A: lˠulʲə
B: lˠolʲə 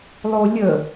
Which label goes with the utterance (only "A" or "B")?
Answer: B